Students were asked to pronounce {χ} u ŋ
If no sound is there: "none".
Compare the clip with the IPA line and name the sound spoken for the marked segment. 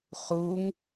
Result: χ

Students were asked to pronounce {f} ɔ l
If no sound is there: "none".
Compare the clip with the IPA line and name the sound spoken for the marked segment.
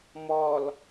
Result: m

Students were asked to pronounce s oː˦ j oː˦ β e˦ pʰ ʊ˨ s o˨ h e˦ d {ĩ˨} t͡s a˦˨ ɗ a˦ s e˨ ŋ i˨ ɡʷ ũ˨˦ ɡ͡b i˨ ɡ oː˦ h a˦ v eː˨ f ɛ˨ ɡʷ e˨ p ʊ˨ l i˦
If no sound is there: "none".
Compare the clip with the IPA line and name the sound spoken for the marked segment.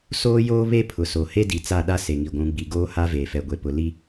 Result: i˨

